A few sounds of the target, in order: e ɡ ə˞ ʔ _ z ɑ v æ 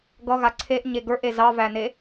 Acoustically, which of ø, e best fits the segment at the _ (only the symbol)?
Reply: e